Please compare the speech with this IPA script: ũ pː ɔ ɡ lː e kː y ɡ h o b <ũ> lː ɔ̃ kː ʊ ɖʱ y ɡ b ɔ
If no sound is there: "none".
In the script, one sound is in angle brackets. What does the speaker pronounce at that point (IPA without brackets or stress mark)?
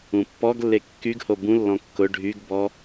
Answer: ũ